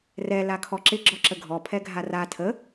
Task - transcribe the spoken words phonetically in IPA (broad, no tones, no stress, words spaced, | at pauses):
rɛ lakʰɔǁɪ ɡ͡ǁɔǁəɡʱɔ pʰɛɡʱara tʰə